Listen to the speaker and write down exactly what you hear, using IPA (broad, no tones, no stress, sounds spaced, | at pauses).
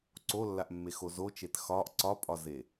ǀ o lː a ʔ mː e x o z o t͡ʃ e t x ɒ ʔ ǀ ɒ pʼ ɒ z e